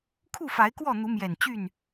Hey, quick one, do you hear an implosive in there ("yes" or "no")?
no